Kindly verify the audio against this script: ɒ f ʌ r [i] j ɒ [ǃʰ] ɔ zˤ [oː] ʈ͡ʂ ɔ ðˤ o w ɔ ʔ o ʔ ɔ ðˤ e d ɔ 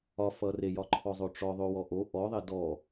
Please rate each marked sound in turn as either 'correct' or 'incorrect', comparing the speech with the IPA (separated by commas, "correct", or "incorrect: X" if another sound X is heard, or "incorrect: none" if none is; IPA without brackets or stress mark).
incorrect: e, correct, incorrect: o